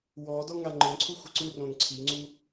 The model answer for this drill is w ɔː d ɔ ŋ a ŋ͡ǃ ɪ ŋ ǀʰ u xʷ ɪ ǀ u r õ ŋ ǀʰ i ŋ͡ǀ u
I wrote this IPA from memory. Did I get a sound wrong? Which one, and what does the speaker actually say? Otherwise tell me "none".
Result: none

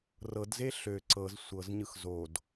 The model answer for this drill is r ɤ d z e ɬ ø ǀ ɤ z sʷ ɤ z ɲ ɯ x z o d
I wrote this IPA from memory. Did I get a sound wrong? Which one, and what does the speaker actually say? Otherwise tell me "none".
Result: none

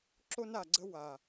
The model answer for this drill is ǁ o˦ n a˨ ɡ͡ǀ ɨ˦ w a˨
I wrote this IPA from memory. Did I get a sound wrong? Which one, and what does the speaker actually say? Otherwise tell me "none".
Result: ɨ˦ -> ə˦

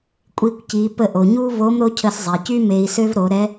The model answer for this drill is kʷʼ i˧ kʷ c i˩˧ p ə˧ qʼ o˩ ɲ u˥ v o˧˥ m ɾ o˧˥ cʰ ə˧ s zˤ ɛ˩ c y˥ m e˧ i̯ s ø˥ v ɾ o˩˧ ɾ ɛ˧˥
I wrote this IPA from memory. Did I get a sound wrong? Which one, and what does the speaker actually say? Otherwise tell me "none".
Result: qʼ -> ʔ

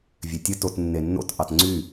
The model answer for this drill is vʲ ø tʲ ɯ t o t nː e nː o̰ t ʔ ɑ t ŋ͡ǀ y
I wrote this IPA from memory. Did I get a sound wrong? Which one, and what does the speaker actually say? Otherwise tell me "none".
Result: none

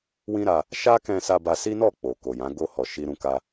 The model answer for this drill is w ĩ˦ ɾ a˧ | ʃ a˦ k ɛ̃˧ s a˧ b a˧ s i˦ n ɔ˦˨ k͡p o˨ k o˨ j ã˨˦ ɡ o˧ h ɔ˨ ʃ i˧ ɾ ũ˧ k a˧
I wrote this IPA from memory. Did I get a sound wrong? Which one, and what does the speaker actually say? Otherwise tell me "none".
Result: none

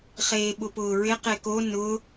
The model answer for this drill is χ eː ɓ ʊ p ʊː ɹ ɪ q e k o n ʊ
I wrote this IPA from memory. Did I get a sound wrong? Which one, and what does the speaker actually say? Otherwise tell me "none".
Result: none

